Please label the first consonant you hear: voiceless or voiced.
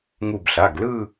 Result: voiced